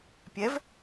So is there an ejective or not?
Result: no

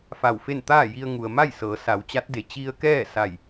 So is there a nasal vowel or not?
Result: no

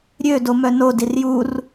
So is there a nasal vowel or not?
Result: no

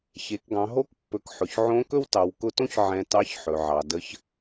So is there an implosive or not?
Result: no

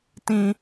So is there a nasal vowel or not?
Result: yes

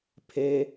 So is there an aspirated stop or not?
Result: yes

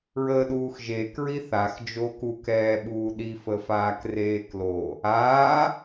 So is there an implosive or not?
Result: yes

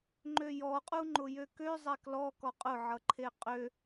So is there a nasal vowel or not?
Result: no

